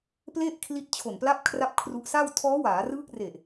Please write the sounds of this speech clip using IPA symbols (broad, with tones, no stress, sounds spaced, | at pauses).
p l e˥˩ ʔ kʰ l i˦˥ t̚ t͡ɕʰ o˨˩ n p l a˦˥ p̚ kʰ r a˥˩ p̚ kʰ r u˦˥ ʔ s a˥˩ w tʰ ɔː˦˥ w aː˩˦ r ɯː˦˥ k̚ r e˨˩ ʔ